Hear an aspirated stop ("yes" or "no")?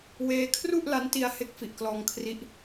yes